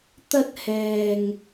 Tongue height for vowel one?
low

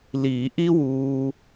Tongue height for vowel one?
high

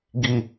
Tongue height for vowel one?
high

